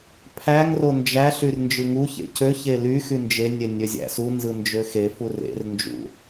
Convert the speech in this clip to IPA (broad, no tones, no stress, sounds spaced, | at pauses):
pʰ æ ŋ r o n d͡ʒ æ ɬ y r n d͡ʒ ɯ ŋ u ç ḛ c ø ç e l y x y n d͡ʒ e nʲ e nʲ ø zʲ æ̰ s u n z ɯ n d͡ʒ ø x e f u r ḛ r n d͡ʒ ṵ